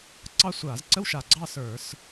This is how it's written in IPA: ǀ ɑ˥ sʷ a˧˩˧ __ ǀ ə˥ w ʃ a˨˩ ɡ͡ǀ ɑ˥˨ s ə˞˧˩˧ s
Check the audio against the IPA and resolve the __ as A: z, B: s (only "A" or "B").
A